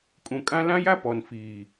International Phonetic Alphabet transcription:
kʼ ũ˨ kʼ ã˦ l ã˦ j a˦ p ɔ˨ n f iː˨

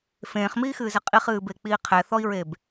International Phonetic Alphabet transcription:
f ẽː χ m iː x ɨː z ɘ qʼ i χ ɨː b e k͡p iː qʰ ɛ θ ɔ i̯ ɹ e b

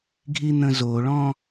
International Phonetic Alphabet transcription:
ɡʱ i n̪ ə̃ z o ɭ ɔ̃

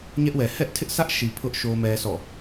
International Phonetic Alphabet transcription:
ɲ ɛ˦ ʔ w ɛ˨ h ɛ˦ ʔ tʰ ɪ˦ ʔ s ä˦ ʔ ʃ i˨ pʰ ʊ˦ ʔ ʃ o˦ m ɛ˦ s ɔ̰˦˨

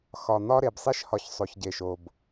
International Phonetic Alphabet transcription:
x ɒ˨ n̪ ɒ˦ ɾ e˨ b sˤ i˦ ʃ h ɒ˨ ç sˤ o˨ ç ɟ e˨ ʃ o˨ b

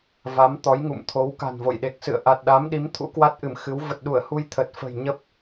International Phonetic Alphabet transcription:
v a˨˦ m t̪ ɔ˨˦ j ŋ ṵ˧˨ m t̪ʰ o˨˦ w k a̤˨˩ n v o̰˧˨ j ɗ e˨˩ k̚ s ɨ̰˧˨ ə̯ ʔ a˨˩ t̚ ɗ a˨˦ m ɗ i˨˦ m t̪ʰ ṵ˧˥ k w a˦˥ t̚ ʔ ɨ˧˩ m x ɨ˨˦ w v ə˨˩ t̚ ɗ u˧˩ ə̯ h u˧ j t̪ʰ ə˨˩ t̚ f ə̤˨˩ j ɲ ə˦˥ p̚

